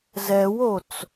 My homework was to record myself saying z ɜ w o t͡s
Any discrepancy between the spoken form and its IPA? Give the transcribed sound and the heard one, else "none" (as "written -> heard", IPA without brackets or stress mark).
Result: ɜ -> ɛ